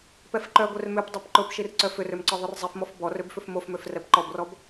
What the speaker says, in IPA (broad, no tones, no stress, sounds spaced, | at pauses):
p ɛ f ǃ œ ɡʷ œ r m ø p dˤ ø p ǃ ʊ p ʃ i r ǀ œ f ʏ r ø m ǀ ɔ ðˤ ʊ r zˤ i f m ɔ f b ɔ r ø b f ʏ f m o f m ø f r ɛ p ǃ ɔ b r ɔ b